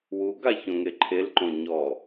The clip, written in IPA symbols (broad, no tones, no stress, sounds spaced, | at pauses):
w u ɡ a ç õ ŋ e ǃʰ e l ǃ õ ɲ ɔ